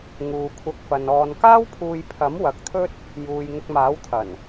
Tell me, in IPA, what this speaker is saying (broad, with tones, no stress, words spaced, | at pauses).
ŋuː˨kʷʰɐ˧k̚fɐ˨n ɔː˨nkaː˥wpʰuː˧jpʰɐ˨˥m wɐ˨k̚t̪ʰɵ˥t̚ | juː˨jŋʊ˧k̚maː˨˥wt̪ʰɐ˨˩n